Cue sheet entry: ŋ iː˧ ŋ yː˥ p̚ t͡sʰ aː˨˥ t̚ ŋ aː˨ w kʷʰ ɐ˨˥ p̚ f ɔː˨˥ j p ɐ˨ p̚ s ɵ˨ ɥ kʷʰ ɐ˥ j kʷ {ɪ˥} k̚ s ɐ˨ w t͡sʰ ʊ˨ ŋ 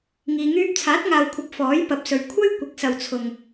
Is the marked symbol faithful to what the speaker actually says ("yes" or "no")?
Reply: no